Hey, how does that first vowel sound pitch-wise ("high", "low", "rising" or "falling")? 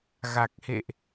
low